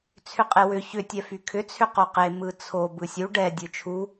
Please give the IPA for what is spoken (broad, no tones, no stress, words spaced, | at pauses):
t͡sʰʏqʼewʏ çʏ tʲɛfykʰʏ t͡sʰʏqoqe mɯt͡sʰo bɯsʲu ɖɛ dʲɯt͡ʃʰu